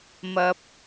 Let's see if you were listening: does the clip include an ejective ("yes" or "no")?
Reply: no